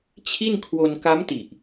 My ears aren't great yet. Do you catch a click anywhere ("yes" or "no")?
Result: no